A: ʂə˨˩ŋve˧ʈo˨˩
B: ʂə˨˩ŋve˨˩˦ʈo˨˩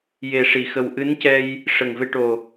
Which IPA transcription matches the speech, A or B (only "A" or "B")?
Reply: A